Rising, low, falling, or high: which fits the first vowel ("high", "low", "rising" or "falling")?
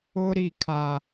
high